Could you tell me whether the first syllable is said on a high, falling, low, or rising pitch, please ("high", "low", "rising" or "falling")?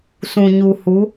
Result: low